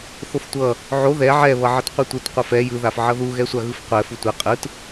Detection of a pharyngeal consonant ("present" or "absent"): present